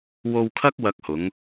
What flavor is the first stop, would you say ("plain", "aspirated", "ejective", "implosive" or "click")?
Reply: aspirated